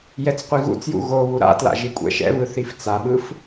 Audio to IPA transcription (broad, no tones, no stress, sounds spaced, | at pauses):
j ɛ t͡s qʷ i ɣ ṵ t͡s j ṵ ɣ o β u ɾ a̰ t l a̰ ʒ i kʷʼ ɛ̰ ʃ ɛ̰ β ɯ θ i f t͡s a ɓ ɯ f